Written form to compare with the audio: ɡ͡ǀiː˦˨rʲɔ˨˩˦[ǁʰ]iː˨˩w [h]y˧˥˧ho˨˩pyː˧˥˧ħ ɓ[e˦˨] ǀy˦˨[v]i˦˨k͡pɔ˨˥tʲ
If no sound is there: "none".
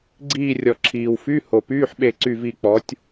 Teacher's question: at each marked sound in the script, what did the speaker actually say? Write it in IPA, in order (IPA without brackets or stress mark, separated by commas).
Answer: ǁʰ, f, e˦˨, v